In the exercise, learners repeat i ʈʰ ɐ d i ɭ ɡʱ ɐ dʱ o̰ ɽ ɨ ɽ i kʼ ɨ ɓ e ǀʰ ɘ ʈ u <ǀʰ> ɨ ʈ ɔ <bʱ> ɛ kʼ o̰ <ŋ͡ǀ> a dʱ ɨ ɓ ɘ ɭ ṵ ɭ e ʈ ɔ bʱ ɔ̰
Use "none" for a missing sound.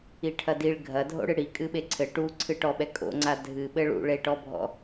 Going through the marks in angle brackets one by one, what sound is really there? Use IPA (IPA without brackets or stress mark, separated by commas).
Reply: ǀʰ, ɓ, ŋ͡ǀ